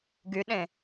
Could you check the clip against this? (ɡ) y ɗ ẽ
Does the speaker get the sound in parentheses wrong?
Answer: no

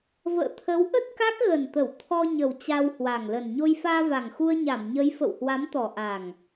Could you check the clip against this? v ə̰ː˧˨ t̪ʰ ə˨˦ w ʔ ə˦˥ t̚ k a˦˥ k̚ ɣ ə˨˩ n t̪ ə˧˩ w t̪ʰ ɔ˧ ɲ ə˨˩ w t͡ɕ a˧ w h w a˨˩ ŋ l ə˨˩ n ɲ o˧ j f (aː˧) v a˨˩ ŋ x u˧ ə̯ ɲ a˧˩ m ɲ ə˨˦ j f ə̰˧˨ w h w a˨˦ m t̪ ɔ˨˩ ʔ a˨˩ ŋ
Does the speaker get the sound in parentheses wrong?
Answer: no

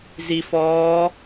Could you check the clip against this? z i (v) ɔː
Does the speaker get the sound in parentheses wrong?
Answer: yes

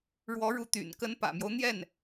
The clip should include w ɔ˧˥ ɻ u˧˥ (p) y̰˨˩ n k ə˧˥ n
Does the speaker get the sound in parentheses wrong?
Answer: yes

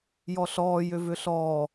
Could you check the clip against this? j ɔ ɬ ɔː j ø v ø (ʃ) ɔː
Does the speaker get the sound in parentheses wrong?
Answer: yes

